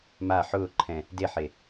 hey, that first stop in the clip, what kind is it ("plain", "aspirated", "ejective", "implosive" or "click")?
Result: click